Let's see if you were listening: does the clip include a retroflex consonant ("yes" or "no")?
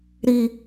no